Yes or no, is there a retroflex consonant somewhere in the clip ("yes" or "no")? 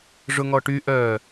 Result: yes